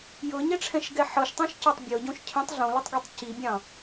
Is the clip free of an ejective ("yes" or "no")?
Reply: yes